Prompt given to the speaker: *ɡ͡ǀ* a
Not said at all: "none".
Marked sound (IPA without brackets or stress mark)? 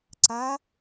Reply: ǀ